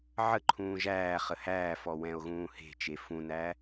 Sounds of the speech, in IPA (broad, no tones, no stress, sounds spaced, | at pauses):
ʕ ə ǃʰ ũː ʒ æː χ ə h æː f ɔ w ɛ̃ o̯ ɣ ũː h e̤ t͡ʃ e f ũ n æ